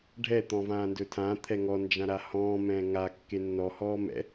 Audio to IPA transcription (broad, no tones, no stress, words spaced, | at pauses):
ɖʱɛ t̪ɔ̃vãːndɵtʰã t̪ʰɛŋɔ nd͡ʒãɾahɔ̃ː mɛ̃ːŋa kːenːɔ hɔːmɛ̰